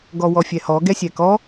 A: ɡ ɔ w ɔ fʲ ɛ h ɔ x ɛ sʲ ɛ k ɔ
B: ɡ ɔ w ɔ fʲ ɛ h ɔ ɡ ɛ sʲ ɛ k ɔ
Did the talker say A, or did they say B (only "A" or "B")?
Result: B